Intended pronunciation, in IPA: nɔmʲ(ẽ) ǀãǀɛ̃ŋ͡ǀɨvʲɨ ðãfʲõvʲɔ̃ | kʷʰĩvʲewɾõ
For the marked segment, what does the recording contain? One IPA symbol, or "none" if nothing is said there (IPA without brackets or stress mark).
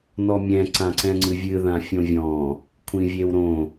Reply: ɛ̃